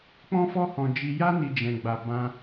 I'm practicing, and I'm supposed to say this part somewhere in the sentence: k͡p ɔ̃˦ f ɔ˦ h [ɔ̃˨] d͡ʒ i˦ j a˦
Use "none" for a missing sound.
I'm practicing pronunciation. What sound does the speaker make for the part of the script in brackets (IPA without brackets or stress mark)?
ɔ̃˧